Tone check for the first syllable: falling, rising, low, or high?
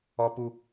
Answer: high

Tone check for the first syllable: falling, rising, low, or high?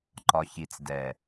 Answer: low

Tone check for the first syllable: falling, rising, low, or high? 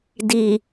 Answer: low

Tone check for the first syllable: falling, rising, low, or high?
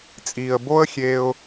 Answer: low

